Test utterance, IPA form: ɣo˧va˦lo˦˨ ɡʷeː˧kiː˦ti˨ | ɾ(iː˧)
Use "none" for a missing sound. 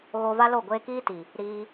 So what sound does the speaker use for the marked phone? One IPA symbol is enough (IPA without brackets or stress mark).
iː˧